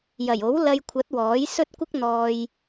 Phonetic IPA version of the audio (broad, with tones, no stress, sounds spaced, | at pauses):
j ɐ˨˩ j o˨˥ w l ɐ˧ j kʷʰ ɐ˨˥ t̚ w ɔː˨˥ j s ɵ˥ t̚ kʷ ɪ˥ k̚ n̪ ɔː˧ j